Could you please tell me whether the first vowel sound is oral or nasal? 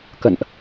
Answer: oral